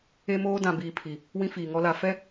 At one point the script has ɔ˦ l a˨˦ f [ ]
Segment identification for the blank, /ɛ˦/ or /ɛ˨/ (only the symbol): ɛ˦